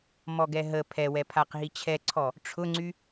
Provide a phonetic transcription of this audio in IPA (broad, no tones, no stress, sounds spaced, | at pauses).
m ɔ ɡ ɛ ɦ ə pʰ ɛ w ɛ pʰ a q ɦ i t͡ɕʰ ɛ ǀʰ ɔ | ʈ͡ʂʰ ʊ ŋ͡ǀ y